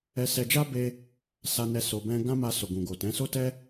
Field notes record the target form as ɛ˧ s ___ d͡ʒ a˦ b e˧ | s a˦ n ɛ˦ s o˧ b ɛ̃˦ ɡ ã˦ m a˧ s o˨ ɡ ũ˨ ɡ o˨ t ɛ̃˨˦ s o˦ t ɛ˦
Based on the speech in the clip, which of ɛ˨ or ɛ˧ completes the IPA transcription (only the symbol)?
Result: ɛ˧